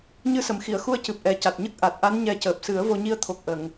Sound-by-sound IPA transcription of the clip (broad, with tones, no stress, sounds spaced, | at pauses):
ɲ ɨ˧ s ə˨˩˨ m x i˨˩˨ ə̯ x u˧ ə̯ c ɨ˨˩ p̚ ʔ ɛ˨˩ c a˨˩ t̚ ɲ ə˦˥ k̚ ʔ a˨˩ t̚ ʔ a˧˥ n ɲ ɛ˨˩˦ c əː˨˩ p̚ s ɨ˨˩˦ ə̯ v o˧ ɲ i˧ ə̯ t̪ʰ o˨˩ k̚ ʔ ə˨˩˨ ŋ